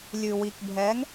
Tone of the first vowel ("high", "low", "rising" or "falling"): low